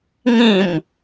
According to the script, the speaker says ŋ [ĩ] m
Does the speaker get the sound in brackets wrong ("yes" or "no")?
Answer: no